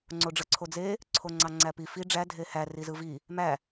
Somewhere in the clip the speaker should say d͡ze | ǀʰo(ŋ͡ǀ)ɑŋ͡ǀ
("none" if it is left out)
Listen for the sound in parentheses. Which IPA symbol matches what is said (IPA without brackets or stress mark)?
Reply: ŋ͡ǀ